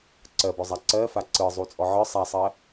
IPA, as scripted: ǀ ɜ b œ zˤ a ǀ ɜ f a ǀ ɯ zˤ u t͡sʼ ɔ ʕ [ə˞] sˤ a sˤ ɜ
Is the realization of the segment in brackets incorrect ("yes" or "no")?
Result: no